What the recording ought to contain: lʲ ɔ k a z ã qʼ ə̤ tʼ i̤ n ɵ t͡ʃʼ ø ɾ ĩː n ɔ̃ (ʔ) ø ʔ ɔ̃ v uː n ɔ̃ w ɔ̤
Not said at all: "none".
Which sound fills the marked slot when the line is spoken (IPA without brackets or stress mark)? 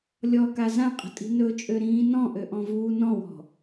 ʔ